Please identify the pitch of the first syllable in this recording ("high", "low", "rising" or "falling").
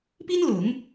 high